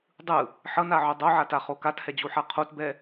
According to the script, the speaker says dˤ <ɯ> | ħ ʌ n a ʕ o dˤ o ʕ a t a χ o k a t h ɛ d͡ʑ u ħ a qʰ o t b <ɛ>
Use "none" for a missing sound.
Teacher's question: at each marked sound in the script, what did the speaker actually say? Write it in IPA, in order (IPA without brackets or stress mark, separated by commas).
ɯ, ɛ